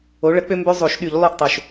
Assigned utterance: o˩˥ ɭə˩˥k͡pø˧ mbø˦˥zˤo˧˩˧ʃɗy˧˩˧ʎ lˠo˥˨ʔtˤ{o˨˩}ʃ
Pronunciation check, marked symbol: correct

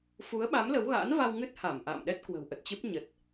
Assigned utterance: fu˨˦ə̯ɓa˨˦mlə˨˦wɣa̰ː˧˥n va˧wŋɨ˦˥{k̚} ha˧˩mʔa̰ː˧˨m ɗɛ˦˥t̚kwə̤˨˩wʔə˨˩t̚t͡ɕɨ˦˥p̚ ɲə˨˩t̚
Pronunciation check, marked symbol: incorrect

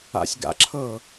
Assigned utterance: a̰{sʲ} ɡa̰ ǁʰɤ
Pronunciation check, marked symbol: correct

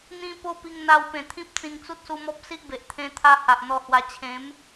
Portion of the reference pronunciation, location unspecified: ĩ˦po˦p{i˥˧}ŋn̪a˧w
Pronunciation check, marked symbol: incorrect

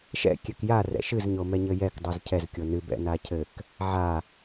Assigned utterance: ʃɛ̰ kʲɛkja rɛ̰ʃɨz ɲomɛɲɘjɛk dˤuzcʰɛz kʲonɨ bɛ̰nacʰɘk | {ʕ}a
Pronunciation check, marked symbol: correct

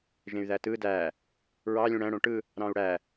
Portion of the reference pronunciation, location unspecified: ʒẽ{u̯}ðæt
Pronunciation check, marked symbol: incorrect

